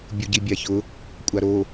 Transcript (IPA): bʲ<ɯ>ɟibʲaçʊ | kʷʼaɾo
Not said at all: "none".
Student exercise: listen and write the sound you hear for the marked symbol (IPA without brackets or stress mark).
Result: u